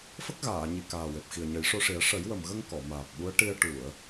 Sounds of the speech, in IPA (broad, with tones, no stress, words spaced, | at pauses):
fə˦˥k̚ɣaː˨˩˨ ɲi˨˩kaː˨˩we˨˩p̚xi˨˩ə̯ ɲə˨˩˦jʂo˧ʂi˨˩˦ə̯ ʂə˨˩˦jwə˨˩m ɣə˧ŋ kɔ˨˩˨maː˨˩p̚ɓu˧˥ə̯ ʈi˧ə̯ ʈu˨˩˨ə̯